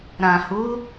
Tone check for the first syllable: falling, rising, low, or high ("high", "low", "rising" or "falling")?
low